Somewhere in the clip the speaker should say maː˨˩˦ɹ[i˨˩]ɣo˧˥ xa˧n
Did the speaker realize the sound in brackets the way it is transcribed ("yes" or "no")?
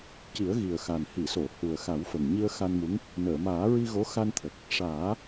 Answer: no